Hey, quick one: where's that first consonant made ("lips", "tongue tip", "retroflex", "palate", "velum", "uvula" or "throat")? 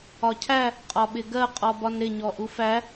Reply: palate